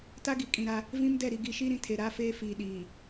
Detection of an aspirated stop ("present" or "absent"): present